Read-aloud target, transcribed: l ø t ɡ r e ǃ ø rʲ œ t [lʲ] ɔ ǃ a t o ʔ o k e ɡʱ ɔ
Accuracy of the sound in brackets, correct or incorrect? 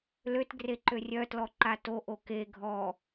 incorrect